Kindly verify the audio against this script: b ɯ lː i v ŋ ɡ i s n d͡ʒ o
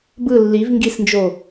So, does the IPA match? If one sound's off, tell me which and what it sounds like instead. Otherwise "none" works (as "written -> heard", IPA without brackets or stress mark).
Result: none